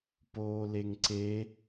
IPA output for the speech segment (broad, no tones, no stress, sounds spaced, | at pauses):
p oː l e ŋ ǀ e